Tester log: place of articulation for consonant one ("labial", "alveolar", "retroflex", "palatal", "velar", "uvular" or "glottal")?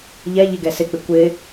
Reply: palatal